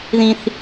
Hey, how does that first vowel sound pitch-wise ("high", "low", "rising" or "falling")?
high